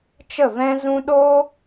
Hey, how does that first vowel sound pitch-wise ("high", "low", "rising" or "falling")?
falling